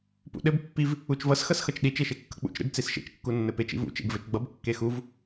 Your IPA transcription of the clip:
p ṵ ɗ ɘ b pː i v | u t͡ʃ v ʌ s x ʌ s x ʌ t͡ʃ ɗ i t͡ʃ e ʃ e kː ʌ k͡p ṵ t͡ʃ ɾ ḛ b t͡s i s ʃ ḛ t͡ʃ kː u nː ɘ p e t͡ʃ ḭ v ṵ t͡ʃ ḛ b v ɘ t͡ʃ ɡ͡b ʌ b kː e x u v

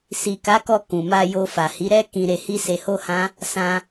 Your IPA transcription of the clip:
s i˨ k a˨˦ k ɔ˧ k ũ˨ m a˧ j o˧ f a˨ h i˨˦ ɾ ɛ˦ k ĩ˧ ɾ e˧ h i˦ s e˧ h o˦ h ã˦ | s ã˧

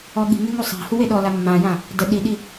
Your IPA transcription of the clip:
ɔ ɠ i̤ ŋ e ŋ u sˤ a̤ h u w e ɗ ɔ l a mː ã j ã | d ə ɗ i ɗ i

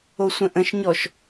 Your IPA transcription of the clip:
o sʷ ə̃ ʔ ə̃ ʃ ɲ ɔ ʃ

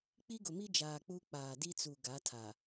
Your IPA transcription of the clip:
k͡p i˦ ɡ ʊ˨ m i˦ d͡ʒ aː˨ k͡p u˦ k͡p aː˨ d i˦ t͡s u˨ ɡ a˨˦ tʰ a˨

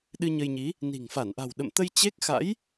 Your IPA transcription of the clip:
ɗ ɨ˧ ɲ ə˧ j ɲ i˨˦ | n i̤˨˩ ŋ f a˧˩ n ʔ a̤˨˩ w ɗ ə̰˧˨ m t̪ ə˧ j t͡ɕ e˦˥ k̚ x a̰˧˥ j

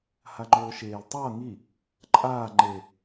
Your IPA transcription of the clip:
h a ŋ͡ǃ oː ʃ eː l tˤ ʌː ŋ i | ǃʼ aː ŋ͡ǃ e

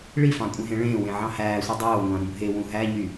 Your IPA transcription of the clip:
ɭ i f ɑ̃ kʷʼ ẽ ɦ ẽ ɭ ẽː w ẽ ʕ ɑ̃ h æː sʷ i dˤ oː ŋʷ ɑ̃ ɾ ũ bʱ e w ũ ɦ æ ɲ y

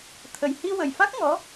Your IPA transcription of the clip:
t̪ʰ ə˨˩ j h i˧ w ə˨˩ j f a˦˥ k̚ ŋ ɔ˧˥

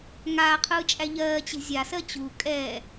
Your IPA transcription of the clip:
ŋ aː qʰ ɯː t͡ʃʼ æ ʎ ɜː t͡ɕ e̤ zʲ a s ɜ t͡ɕ u kʼ ɛː

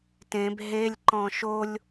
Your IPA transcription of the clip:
t ẽ b ɦ e lʲ ǃ ɔ̃ ʃ o lʲ

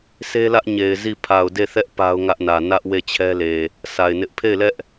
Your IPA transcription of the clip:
sʰ e˦ l ä˦ ʔ ɲ e˨ ɪ̯ z i˦˨ pʰ a˨ ʊ̯ d e˦˨ θ ɛ˦ ʔ p a˦ ʊ̯ ŋ ä˦ ʔ n ä˨ n ä˦ ʔ w e˦˨ t͡ɕʰ ɛ˦ l e˨ | sʰ a˨ ɪ̯ n ɪ˦ ʔ pʰ e˦˨ ɪ̯ l ɛ˦ ʔ

